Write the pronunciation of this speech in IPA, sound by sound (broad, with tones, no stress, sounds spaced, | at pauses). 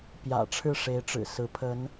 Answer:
p j ä̰˨˩ ʈ͡ʂʰ ɻ̩˥˩ ʂ e˧˥ ɪ̯ ʈ͡ʂ ɻ̩˨˩ s ɹ̩˧˥ pʰ ə˧˥ n